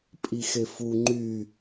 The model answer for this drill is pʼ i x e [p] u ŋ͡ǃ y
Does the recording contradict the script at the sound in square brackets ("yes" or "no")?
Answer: yes